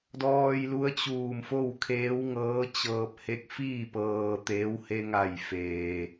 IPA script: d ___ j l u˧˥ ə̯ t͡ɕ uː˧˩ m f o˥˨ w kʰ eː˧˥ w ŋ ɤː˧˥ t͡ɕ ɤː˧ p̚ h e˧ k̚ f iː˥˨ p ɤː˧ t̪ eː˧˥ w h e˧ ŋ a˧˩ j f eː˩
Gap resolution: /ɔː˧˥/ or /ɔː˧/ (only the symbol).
ɔː˧